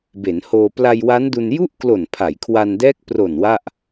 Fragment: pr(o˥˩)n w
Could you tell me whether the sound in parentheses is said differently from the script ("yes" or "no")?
yes